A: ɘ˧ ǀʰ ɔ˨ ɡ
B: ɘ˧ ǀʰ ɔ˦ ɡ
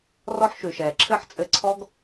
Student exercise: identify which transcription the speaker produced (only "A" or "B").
B